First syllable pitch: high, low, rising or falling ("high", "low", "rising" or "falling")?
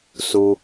low